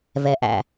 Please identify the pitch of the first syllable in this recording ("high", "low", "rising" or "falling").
low